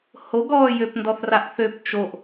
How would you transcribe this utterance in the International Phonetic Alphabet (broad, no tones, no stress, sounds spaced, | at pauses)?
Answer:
h o ɡ ɔː j ø p n d ɔ θ r a ʔ θ ø p t͡ʃ o ʔ